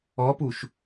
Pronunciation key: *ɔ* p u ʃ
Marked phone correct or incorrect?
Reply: correct